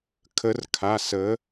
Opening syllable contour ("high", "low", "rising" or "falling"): rising